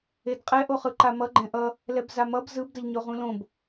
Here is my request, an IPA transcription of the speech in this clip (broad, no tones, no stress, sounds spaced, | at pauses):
e d qʼ ɛ ʔ o χ ɯ ǃ a m ʌ ɡ͡ǃ ɛ̃ ʔ ʌ | l ɛ b z a m ʌ b z ɯ b d ʌ ʎ ɲ o ʁ ũ l õ b